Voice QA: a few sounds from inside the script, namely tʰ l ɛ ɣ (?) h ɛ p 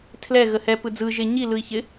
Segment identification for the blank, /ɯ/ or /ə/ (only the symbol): ə